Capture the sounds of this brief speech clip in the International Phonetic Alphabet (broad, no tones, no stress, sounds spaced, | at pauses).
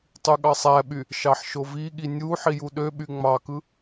tˤ y ɠ ɑ sˤ æ ɓ y | ʃ ɑ ħ ʃ o v i ɠ i nʲ u ħ i j u ɗ ø ɓ y ŋ͡m ɑ k ɯ